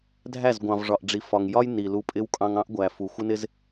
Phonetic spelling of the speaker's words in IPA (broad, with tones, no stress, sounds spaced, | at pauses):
dʱ æ˦˨ z ɡʷ ɑ̃˨ v ʐ ɒ˨ ʔ ɖ͡ʐ i˨ f ɒ˨ ŋ j ɒ˦ j n i˨ l u˧ pʼ ɪ˦ w kʼ ɑ̃˧ ŋ ɑ̃˦ ʔ ɡʷ æ˨ f u˨ xʷ ɪ˦ n ɪ˦ z